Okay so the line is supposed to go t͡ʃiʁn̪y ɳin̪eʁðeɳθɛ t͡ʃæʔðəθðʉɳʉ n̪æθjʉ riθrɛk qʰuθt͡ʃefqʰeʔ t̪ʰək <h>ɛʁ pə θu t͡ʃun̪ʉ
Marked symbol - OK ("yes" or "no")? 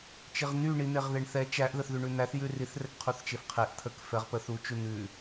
no